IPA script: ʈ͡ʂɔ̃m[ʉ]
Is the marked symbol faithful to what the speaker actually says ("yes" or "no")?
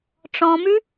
yes